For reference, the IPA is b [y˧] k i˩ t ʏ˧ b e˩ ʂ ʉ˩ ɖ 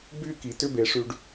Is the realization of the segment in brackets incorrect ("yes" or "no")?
no